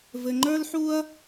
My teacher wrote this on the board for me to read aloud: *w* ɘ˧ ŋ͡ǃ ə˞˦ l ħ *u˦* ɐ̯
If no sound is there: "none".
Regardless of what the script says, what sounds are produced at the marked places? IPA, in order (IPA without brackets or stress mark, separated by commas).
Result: v, u˦